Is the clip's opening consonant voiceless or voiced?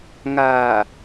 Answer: voiced